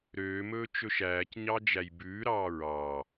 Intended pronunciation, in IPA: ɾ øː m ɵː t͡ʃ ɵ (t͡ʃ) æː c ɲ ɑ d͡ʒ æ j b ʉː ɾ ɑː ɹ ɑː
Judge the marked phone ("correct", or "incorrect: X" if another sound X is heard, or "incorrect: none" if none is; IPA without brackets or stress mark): incorrect: ʃ